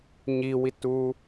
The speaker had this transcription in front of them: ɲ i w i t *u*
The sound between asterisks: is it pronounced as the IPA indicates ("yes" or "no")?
yes